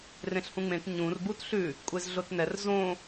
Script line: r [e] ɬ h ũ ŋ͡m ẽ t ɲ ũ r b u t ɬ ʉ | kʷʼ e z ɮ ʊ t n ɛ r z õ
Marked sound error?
yes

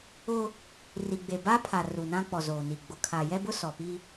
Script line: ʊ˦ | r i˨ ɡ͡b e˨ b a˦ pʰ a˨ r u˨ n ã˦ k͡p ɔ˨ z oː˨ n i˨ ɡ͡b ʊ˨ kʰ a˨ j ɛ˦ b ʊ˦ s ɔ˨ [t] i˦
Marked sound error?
yes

